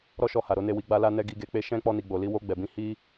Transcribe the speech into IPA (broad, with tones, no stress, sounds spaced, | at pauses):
ɾ ɔ˦ ʃ ɔ˧ h a˨ ɾ o˨˦ n e˦˨ w i˨˦ ɡ͡b a˧ l a˧ n ɛ˧ ɡ i˧ ɡ e˧ k͡p e˦ ʃ ɛ̃˦ k͡p ɔ˧ n i˨ ɡ͡b o˨ l i˧ w o˧ ɡ͡b ɛ˨ b ĩ˧ h i˦